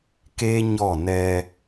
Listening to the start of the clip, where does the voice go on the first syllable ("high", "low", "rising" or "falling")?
high